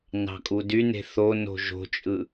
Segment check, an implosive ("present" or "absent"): absent